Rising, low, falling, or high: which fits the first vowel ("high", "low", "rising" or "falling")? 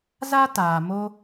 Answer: high